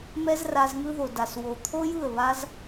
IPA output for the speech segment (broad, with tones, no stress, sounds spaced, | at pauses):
m ɛ˦ z r a˧ z ŋ ɯ˧ ð o˨ d a˨ s w o˨ t̪ʰ o˦ j ɯ˦˨ ə̯ β a˦ z